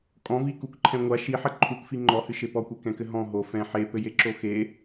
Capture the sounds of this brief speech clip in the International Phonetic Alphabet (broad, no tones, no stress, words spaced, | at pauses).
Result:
kʼɔ̃vikukǃʰɛ̃ ŋʷa ʃiħɐ ǃʰukfi ŋ͡ǃɔhɨʃe pɔkʷɛkɛ̃kɘ ɦɔ̃ ɦo fɛ̃ ħepɘjeǁo xe